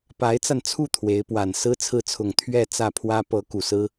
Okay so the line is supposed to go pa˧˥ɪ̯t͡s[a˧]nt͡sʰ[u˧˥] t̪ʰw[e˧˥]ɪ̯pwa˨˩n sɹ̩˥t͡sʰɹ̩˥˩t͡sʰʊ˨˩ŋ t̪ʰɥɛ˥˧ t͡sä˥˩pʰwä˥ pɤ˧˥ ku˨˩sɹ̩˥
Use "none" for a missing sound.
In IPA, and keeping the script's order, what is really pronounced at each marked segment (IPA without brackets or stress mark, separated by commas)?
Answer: a˧, u˥˩, e˧˥